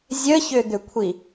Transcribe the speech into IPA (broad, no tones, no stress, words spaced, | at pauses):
zʲəçʏd̪ʏkʷʰi